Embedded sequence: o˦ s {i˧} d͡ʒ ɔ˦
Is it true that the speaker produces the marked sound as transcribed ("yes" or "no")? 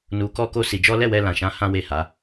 yes